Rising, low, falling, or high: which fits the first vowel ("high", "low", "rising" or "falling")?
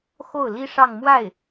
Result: falling